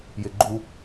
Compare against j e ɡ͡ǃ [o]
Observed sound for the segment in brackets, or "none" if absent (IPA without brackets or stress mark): u